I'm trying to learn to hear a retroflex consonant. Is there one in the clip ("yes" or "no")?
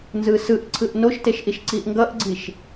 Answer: no